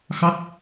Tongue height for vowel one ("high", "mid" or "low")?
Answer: low